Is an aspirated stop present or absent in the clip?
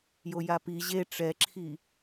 present